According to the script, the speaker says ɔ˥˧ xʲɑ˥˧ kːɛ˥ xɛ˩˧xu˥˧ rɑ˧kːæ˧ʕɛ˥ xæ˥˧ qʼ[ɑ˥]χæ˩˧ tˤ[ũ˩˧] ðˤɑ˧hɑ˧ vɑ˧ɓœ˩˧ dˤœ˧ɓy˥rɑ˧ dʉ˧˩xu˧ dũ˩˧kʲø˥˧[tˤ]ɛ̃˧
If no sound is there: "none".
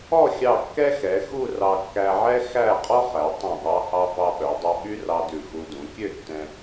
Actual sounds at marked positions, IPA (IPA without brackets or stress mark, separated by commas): ɔ˥, ũ˧˩, tː